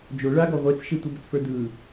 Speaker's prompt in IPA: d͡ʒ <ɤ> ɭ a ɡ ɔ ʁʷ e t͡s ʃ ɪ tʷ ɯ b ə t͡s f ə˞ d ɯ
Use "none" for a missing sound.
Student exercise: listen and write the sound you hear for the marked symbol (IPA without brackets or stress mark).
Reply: o